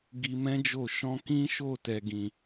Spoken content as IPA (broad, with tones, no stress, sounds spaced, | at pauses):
ɡ i˧ m ɛ̃˦ d͡ʒ o˦˨ ʃ ɔ̃˧ k ĩ˦ ʃ o˦˨ t ɛ˨ ɡ ĩ˨